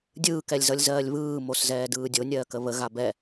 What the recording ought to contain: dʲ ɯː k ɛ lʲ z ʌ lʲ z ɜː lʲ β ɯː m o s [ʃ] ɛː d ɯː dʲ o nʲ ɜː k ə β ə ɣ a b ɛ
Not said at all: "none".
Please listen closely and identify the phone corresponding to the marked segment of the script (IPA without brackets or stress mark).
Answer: z